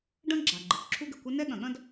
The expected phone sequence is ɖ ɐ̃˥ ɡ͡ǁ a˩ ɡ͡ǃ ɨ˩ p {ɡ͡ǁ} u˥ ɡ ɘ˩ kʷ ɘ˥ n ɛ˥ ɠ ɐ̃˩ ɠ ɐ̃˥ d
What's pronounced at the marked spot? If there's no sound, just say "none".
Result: ǁʰ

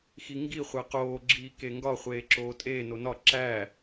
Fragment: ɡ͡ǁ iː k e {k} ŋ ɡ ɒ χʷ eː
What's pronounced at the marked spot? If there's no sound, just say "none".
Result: none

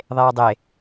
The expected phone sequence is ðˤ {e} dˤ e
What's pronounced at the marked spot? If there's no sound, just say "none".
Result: eː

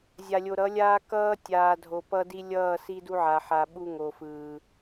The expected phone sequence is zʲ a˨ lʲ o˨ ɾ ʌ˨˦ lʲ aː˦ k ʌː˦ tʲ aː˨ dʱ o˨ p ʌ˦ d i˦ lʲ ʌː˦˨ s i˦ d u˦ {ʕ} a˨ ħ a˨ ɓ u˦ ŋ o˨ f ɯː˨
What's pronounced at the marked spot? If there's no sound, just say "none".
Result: ʕ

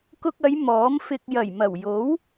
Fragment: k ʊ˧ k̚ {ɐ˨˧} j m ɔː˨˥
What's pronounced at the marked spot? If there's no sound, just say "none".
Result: ɐ˨˧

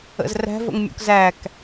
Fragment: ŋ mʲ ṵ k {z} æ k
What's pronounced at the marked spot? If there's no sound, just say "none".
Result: z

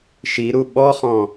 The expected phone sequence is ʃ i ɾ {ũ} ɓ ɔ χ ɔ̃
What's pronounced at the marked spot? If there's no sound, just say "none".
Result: u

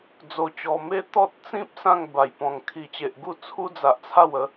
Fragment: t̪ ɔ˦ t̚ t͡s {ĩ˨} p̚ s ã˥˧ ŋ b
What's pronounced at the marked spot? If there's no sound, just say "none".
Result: ĩ˦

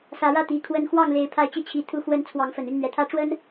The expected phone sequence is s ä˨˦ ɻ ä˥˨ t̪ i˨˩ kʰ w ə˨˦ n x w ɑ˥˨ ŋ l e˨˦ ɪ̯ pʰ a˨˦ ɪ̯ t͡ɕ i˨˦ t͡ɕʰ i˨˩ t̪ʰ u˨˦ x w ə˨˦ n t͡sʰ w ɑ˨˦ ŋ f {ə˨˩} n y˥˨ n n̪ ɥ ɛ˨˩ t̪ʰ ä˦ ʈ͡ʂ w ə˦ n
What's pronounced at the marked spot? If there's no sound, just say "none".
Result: ə˨˩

